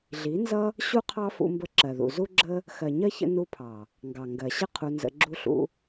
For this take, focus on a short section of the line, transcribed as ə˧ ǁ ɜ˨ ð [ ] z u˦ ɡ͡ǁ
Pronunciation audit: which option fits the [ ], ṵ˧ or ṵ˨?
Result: ṵ˨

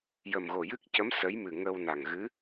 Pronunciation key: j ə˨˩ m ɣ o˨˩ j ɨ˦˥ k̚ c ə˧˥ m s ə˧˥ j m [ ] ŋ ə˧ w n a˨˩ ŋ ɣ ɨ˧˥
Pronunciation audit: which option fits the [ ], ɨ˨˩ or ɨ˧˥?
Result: ɨ˨˩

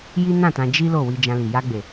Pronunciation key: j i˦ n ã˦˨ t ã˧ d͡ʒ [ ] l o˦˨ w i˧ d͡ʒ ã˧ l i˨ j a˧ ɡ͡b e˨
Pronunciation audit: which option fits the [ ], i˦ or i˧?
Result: i˦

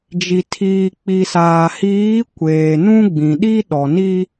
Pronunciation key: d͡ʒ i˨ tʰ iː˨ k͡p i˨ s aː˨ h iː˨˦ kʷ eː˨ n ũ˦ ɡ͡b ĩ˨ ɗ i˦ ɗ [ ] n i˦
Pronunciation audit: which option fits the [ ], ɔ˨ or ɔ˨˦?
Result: ɔ˨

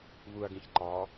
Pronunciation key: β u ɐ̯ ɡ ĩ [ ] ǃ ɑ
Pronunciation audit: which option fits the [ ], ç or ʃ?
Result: ç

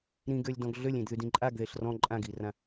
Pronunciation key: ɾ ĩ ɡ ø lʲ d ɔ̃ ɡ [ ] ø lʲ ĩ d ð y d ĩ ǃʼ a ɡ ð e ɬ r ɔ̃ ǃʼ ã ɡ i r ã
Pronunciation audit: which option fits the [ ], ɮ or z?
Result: ɮ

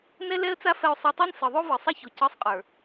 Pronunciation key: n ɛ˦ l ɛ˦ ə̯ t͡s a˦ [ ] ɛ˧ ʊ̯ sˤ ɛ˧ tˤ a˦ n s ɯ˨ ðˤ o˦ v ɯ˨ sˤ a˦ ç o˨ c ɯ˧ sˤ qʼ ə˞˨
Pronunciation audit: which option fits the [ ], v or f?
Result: f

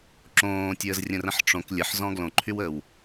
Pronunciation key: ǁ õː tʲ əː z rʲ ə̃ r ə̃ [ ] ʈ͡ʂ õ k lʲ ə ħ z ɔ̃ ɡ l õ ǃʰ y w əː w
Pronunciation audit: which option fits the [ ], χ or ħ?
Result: ħ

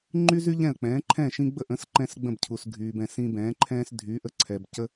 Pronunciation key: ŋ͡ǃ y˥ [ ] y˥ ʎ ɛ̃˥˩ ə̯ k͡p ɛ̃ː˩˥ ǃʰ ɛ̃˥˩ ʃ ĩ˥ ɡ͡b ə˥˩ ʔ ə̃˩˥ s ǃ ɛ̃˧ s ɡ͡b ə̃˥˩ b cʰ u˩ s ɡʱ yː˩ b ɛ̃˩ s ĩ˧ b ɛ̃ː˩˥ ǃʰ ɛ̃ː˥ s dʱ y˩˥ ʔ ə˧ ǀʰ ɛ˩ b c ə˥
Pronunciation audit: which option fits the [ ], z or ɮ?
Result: z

